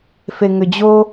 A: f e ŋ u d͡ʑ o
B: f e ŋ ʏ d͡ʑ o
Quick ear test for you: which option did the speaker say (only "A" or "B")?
B